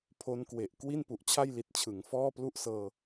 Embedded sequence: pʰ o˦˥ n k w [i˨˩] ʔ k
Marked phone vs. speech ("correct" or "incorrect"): incorrect